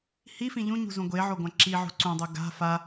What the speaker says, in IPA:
hifĩ ʎũɲṳzũ ɡʷeʕoɡʷã ǁiʕo̤ ǀũdˤo ɡa̤ fa

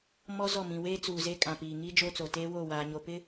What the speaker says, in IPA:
mɔ˦zɔ˦˨mĩ˨ weː˦t͡suː˨ ze˦kʼã˨ piː˨ŋi˦ d͡ʒoː˦t͡so˨ teː˦wo˦˨waː˨ɲo˨ pɪ˦

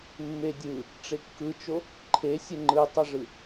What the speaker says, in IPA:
mːedʲɯ | ʈ͡ʂekːɯt͡ʃo | ǃʰesʲɯ ŋ͡ǃɯtˤʌʐɯ

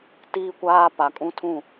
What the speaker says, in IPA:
tiː˦kʷaː˦ pa˨kʼũ˦tʰũ˦˨

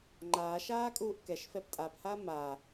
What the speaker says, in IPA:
ŋ͡ǃaːʃaːkʼuːʔ kɛʃfɛp tʼaphaɐ̯ ma

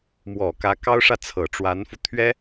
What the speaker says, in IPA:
mwɔ˨˩kä˧˥ kɑ˥ʊ̯ʂä˥˩ t͡sʰɤ˨˩ʈ͡ʂwa˧˥nfu˧ t̪ʰɥɛ˥

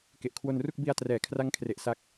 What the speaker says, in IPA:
ke˨˩ʔkʰwo˧nru˥˩k̚ bi˧a̯trɛː˨˩kʰra˦˥ŋkʰre˨˩ʔ sa˥˩k̚

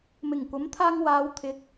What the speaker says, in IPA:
mɪ˨˩ŋkʷɐ˨˥mt̪ʰaː˧ŋ waː˨˧wt̪ʰɪ˨˥k̚

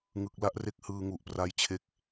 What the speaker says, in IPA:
ŋɯ˨˩k̚ la˥˩ʔre˦˥k̚ hɯː˧ŋu˨˩ʔpra˧jt͡ɕʰe˦˥k̚

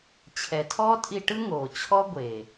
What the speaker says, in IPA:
t͡ɕʰɛ˨tʰɔː˦tʼi˧ʈɯ˦ ŋoː˨t͡ɕʰɔ˦ ɡʷeː˨

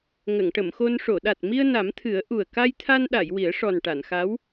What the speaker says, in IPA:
ŋə˨˩˨ŋʈə˨˩˨mxo˧n ʂo˨˩˨ɗa˨˩t̚mi˧ə̯ na˨˩˦mt̪ʰɨ˨˩˦ə̯ ʔu˨˩ə̯ ka˧jt̪ʰa˧nɗa˨˩˨j wi˨˩˦ə̯ʂɔ˨˩nʈa˨˩˨nxa˧˥w

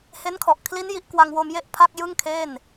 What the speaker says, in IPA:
he˦˥nkʰɔ˨˩ʔ kʰli˦˥nji˦˥ʔ kwa˧ŋwo˧mje˥˩ʔ pʰa˥˩k̚ jɯ˥˩ŋkʰeː˥˩n

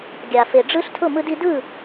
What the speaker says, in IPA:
ɡʲa˨fe˨ ɖ͡ʐɯ˦ɬ tʰʊ˦˨mɯ˦di˦ dɯ˦˨

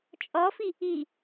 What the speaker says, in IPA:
t͡ʃʼɔfi | i

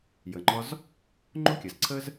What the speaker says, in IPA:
jə˩ŋ͡ǃɒ˦z | ŋ͡ǃʊ˥kʲə˩zǀʰə˥z

